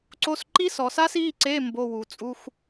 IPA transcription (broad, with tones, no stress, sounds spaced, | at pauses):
ǀ o˧˥˧ s ǃ i˥ s ɔ˩˧ s a˥ s i˧˥˧ ǀ e˧˥˧ m b o˧˥˧ w u˩˧ t͡sʼ u˧˥˧ x